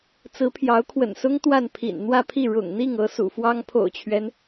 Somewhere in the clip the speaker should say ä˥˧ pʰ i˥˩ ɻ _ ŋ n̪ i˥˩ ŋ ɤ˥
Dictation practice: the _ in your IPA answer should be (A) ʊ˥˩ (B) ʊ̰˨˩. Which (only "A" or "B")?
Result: B